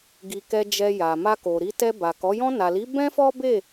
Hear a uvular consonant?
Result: no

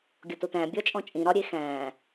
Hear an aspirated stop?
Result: no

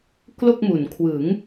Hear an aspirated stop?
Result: yes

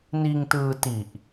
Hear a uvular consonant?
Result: no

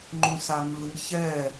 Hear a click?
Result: yes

